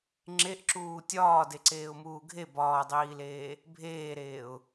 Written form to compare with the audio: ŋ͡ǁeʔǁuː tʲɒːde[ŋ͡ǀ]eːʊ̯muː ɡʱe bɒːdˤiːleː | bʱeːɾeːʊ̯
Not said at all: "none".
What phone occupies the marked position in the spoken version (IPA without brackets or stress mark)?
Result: ǀ